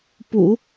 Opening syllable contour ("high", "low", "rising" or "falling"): low